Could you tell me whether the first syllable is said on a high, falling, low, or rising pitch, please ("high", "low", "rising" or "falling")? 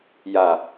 low